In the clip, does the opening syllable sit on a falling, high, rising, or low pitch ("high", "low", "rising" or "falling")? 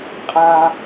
high